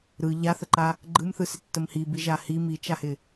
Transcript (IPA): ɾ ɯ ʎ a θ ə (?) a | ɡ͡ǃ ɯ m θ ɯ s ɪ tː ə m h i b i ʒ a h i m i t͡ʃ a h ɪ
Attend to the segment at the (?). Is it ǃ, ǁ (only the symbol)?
ǃ